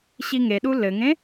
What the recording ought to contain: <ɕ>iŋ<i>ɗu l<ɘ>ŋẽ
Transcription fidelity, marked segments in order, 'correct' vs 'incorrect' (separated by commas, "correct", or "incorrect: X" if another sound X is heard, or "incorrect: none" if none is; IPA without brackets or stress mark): correct, incorrect: e, correct